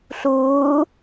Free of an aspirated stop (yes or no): yes